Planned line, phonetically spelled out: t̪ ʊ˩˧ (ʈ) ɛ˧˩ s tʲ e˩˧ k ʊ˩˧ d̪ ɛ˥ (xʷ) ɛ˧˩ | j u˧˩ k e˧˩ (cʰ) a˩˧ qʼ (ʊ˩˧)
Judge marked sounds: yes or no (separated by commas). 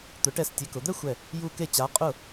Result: yes, yes, no, no